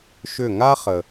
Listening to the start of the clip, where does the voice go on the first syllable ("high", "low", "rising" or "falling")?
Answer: falling